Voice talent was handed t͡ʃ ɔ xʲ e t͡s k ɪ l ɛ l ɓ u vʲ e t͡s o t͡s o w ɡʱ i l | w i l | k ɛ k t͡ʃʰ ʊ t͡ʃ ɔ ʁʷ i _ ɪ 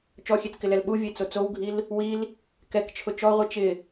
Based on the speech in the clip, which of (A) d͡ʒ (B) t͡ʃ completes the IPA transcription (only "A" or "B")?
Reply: B